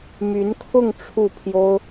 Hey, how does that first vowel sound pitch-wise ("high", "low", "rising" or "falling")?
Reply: rising